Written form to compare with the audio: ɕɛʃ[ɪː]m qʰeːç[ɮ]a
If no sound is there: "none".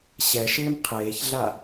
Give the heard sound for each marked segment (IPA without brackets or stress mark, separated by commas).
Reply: ɪː, ɮ